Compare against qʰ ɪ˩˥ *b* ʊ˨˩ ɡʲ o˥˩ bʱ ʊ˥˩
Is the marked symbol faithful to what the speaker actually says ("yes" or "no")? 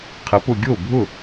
no